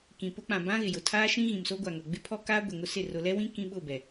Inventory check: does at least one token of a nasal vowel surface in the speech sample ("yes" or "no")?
yes